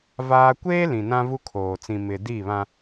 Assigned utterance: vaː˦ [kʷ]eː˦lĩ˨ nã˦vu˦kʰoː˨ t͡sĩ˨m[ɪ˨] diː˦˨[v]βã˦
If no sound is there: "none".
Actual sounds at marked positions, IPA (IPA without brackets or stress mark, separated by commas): kʷ, ɪ˨, none